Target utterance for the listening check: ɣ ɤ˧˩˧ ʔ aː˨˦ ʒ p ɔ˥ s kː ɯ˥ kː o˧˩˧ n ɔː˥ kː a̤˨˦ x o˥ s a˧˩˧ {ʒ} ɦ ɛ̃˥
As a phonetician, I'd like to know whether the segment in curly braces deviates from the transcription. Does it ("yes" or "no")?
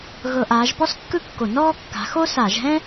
no